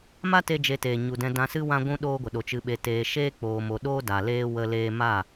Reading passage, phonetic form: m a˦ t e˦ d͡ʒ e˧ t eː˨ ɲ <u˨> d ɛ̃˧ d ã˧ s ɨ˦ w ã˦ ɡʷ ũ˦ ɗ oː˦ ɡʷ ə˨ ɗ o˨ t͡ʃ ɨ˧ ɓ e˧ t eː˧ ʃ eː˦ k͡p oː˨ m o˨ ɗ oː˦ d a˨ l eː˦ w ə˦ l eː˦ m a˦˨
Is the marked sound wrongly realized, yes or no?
no